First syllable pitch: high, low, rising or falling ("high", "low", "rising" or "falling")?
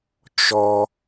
high